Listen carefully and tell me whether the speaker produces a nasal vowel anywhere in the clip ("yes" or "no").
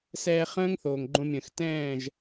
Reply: yes